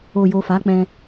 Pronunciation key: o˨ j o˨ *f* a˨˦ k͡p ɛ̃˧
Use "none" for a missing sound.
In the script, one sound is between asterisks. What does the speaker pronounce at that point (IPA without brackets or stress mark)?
f